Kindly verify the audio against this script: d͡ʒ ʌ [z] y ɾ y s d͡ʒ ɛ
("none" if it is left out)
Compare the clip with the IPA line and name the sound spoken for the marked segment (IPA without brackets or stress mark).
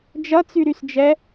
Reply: t͡s